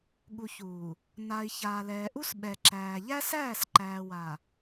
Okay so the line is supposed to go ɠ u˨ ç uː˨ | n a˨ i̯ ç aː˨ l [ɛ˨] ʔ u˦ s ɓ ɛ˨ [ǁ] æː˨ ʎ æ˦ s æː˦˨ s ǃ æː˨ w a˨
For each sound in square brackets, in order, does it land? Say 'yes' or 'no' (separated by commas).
no, yes